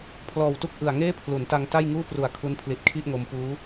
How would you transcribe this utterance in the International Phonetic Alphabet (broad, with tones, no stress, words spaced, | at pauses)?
pʰlɔː˨˩wtu˥˩k̚ ʔɯ˨˩a̯ ŋeː˥˩pʰlu˩˦nta˧ŋ ta˥˩j ŋuː˥˩pru˨˩a̯ kʰu˦˥npʰli˨˩t̚kʰi˥˩ʔŋo˧m puː˦˥